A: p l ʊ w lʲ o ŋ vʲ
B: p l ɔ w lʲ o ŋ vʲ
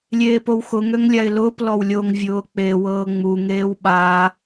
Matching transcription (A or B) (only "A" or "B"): B